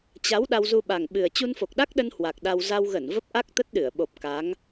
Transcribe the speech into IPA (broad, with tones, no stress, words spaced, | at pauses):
t͡ɕa˨˦w ɗa˧wzu˧ɓa˨˩ŋ ɓɨ˨˩ə̯ t͡ɕu˧nfo˨˩k̚ɗa˦˥k̚ɗə˧n hwa˨˩k̚ɗa˧w za˧wɣə˧˩n və˦˥p̚ʔa˦˥k̚t̪ə˦˥t̚ ɗɨ˧˩ə̯ ɓo˨˩p̚ ka˨˦ŋ